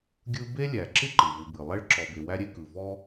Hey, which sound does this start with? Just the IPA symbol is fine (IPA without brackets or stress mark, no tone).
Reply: ɡʲ